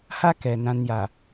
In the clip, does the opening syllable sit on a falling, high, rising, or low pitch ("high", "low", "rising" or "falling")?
high